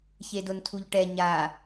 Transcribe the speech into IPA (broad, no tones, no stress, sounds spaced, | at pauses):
ç e d o n tʰ u ʎ ʈ ɛ ɲ a